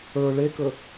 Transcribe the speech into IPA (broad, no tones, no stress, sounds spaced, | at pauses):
ə˞ ɭ e k ɵ